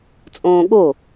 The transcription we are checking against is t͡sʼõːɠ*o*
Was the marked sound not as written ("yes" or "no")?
no